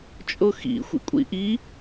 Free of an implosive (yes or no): yes